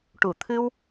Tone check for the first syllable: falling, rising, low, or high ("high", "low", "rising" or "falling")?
low